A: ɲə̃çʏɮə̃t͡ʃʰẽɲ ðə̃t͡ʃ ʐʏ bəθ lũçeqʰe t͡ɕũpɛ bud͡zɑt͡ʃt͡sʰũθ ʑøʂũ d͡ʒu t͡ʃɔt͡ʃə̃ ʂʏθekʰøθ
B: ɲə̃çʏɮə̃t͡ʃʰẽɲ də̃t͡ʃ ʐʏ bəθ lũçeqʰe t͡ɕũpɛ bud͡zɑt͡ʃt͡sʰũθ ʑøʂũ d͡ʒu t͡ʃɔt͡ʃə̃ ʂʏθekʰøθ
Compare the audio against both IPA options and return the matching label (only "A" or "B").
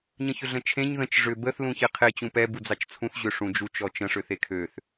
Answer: A